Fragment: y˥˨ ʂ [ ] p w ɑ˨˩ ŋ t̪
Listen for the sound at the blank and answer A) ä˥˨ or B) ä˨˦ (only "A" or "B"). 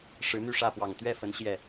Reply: A